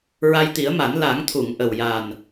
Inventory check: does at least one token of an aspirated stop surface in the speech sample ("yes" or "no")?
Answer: yes